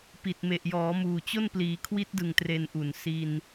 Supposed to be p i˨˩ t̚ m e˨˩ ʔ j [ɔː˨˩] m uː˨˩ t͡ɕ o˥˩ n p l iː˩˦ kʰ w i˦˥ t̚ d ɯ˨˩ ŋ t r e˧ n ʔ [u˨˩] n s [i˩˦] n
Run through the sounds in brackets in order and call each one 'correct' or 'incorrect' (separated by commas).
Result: incorrect, correct, incorrect